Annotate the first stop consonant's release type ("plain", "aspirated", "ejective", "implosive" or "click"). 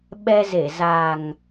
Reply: implosive